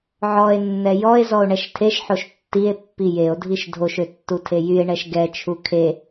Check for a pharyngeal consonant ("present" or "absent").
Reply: present